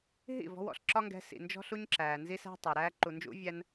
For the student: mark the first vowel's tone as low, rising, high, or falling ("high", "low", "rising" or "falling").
falling